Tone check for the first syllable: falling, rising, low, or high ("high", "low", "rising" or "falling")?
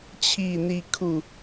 falling